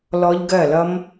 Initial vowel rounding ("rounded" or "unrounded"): rounded